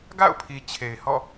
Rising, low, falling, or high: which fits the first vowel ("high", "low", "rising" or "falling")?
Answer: falling